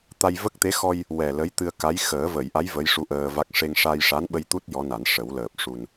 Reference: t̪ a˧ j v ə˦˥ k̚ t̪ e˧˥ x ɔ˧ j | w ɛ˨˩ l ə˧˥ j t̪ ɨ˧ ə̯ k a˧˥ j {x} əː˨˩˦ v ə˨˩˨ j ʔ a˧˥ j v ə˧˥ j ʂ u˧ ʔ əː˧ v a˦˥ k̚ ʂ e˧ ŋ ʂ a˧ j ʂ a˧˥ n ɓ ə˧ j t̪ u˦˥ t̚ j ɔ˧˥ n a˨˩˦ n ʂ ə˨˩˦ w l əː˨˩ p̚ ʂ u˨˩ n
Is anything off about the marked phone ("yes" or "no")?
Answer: no